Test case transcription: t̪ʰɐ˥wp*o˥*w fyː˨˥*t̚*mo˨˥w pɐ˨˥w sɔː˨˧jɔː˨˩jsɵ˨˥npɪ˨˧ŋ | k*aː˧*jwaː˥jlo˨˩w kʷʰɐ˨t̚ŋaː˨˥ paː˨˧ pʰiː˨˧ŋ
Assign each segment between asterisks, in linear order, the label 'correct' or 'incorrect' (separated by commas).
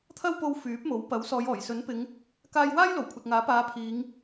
incorrect, incorrect, correct